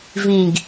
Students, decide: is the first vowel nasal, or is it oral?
nasal